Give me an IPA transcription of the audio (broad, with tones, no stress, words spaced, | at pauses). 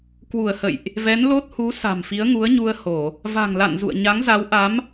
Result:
kwu˧˩ə̯hə̰˧˨jʔ | vɛ˨˦n lo˦˥t̚hu˨˦ sa̤˨˩mfi˨˦ə̯ŋu˨˦ə̯ ɲu˧ə̯ ho˧˩˨ | va̤˨˩ŋ la̰˧˨n zṵ˧˨ə̯ɲa˨˦ŋza˨˦wʔa˨˦m